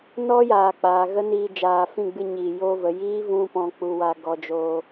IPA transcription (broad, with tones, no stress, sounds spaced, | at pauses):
n ɔ˦ j aː˨ k͡p aː˨ ɣ ə˦ n iː˧ d͡ʒ aː˨ f ĩ˦˨ ɡ͡b ɨ˧ ɲ iː˨ j oː˧ v ə˨ j iː˦ v ũ˦ p ɔ̃˧ k͡p u˧ w a˧ ɡ ɔ˧ d͡ʒ oː˧